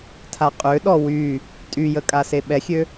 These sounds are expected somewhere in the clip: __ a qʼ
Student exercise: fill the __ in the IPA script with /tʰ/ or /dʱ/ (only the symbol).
tʰ